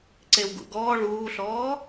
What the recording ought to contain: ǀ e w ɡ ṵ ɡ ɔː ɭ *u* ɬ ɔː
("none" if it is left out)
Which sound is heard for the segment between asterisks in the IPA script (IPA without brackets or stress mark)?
uː